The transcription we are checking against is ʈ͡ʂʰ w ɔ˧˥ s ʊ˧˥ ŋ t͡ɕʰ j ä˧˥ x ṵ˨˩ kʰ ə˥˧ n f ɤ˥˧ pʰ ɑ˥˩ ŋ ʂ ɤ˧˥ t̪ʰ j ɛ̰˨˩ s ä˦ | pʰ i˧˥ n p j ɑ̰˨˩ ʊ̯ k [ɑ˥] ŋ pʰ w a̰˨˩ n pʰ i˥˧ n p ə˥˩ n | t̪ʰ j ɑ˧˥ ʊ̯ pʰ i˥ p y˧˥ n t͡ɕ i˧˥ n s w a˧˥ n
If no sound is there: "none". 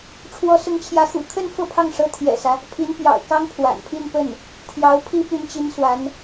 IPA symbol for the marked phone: ɑ˥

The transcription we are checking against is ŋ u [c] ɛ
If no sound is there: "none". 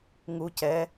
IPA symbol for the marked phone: c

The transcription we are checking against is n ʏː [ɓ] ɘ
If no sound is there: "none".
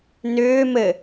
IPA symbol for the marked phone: m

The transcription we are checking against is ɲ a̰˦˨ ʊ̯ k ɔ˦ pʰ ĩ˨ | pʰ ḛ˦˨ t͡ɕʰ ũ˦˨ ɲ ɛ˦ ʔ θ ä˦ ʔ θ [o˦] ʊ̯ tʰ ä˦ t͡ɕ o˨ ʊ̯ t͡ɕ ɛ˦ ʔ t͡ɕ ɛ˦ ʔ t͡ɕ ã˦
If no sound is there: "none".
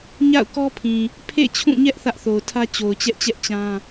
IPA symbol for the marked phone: o˨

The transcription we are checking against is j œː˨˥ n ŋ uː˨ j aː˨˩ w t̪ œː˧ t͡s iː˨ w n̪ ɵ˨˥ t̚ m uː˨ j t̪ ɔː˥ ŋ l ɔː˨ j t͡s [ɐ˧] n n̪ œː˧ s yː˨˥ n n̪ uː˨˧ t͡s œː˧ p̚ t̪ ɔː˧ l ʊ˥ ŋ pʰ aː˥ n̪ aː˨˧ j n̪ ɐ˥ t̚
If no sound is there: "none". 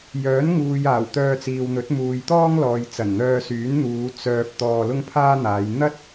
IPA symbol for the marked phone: ɐ˨˩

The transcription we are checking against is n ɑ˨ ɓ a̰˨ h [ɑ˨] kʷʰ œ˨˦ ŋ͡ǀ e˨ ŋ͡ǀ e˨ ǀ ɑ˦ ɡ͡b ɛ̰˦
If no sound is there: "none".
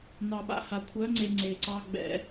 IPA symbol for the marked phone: a˨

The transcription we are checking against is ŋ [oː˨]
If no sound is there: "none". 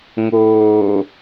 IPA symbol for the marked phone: oː˨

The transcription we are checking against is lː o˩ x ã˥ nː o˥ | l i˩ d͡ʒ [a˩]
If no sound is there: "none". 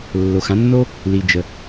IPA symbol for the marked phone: ə˩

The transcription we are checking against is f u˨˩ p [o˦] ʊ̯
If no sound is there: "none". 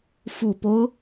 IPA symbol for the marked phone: o˦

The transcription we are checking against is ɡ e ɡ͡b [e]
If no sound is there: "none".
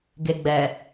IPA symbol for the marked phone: ɛ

